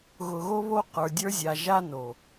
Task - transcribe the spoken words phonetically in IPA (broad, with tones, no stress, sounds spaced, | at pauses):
ɣ ʊ˨ ɣ o˦ β o˦ q ə˞˨ dʲ ə˞˦ zʲ a˨ ʒ a˦ n o˨